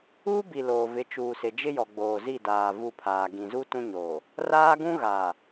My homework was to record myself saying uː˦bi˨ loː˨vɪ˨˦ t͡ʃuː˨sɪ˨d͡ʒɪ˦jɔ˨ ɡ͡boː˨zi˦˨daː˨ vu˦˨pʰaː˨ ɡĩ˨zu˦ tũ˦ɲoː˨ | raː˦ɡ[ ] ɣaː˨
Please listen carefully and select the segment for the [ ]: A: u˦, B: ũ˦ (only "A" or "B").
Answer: B